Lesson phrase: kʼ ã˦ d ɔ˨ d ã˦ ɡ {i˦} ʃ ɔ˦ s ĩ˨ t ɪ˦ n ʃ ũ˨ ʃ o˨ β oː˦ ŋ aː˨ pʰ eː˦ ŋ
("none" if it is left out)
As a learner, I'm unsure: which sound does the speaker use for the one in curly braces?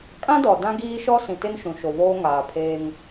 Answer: iː˦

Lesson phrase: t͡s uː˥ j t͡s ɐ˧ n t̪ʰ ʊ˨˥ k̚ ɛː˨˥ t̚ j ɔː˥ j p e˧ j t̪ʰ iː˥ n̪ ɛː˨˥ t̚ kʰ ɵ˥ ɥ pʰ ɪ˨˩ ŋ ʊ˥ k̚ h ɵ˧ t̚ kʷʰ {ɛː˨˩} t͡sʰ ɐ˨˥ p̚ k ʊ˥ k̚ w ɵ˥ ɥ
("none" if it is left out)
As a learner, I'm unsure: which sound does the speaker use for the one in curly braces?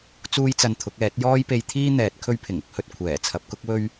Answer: ɛː˨˩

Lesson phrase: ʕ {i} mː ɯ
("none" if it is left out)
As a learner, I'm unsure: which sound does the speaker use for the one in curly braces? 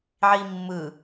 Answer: i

